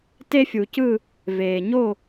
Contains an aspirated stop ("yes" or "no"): no